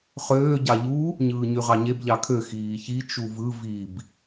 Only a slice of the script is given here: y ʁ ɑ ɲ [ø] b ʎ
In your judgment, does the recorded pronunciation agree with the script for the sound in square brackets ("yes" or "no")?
no